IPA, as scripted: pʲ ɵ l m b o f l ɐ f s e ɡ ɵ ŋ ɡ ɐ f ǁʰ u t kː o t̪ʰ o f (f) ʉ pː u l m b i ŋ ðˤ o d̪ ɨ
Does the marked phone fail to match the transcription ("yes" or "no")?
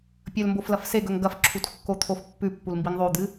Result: yes